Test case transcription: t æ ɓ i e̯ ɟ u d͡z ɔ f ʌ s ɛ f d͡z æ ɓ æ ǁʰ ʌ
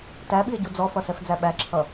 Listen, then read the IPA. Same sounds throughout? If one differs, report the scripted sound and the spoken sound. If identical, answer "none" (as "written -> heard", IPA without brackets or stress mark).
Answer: none